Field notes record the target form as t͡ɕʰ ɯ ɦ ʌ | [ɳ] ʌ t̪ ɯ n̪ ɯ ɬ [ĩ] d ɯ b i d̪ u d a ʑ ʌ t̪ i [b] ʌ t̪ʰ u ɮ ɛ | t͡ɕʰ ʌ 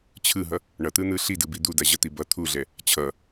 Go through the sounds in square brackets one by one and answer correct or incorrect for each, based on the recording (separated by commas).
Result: correct, incorrect, correct